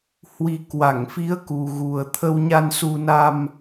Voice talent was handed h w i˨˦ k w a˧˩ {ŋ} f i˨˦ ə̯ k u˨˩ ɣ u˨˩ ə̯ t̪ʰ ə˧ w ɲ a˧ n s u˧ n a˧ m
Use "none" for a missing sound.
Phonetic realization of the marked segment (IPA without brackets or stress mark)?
ŋ